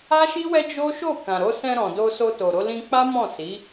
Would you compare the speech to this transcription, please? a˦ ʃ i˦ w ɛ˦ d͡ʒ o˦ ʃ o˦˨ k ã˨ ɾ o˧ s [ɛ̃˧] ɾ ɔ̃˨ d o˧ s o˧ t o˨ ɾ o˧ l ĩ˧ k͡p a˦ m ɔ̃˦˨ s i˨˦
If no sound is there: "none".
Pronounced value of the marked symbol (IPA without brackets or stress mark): ɛ̃˧